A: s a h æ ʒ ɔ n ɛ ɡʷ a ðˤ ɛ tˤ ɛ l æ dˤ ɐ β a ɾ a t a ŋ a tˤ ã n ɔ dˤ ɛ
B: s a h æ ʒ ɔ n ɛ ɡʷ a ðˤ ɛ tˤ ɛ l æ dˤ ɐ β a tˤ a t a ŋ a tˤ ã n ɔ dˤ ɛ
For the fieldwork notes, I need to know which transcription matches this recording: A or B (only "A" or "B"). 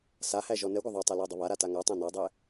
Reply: A